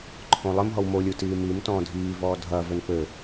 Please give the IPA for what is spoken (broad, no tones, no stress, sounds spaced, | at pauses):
ǃʰ õ lˠ ɘ m ɦ ɔ w m o lʲ u t iː m i m t ɔ̃ː dʱ iː v ɔː dʱ ɐ v ɘ n p ɘ